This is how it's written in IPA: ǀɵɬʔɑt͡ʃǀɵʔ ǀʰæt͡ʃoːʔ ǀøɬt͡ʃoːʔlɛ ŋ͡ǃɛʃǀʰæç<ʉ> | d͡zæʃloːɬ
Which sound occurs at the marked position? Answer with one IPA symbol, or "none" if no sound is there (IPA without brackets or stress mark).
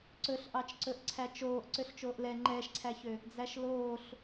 ø